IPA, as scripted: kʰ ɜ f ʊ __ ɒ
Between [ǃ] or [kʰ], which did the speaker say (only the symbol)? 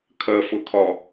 kʰ